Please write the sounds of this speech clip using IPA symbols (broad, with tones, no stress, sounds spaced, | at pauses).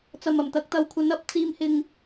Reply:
t͡s ɐ˨ m ɐ˨˩ m t̪ ɐ˨˥ k̚ t̪ ɐ˨ w kʷʰ ɐ˨˧ n ɐ˨˥ p̚ t͡s iː˨ m h ɪ˨ ŋ